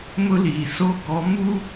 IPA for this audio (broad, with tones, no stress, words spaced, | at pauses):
mʊ˦liː˨ so˦ ɡɔ˨˦ mu˦